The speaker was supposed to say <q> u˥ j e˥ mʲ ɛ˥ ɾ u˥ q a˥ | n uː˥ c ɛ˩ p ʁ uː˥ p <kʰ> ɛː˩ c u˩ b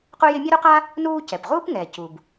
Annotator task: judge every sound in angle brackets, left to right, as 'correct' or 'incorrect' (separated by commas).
correct, incorrect